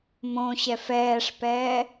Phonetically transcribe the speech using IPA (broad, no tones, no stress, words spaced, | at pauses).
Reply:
mõɕɛf ɛːʂpɛː